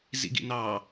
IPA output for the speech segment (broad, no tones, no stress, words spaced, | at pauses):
zḭɡḭnɑ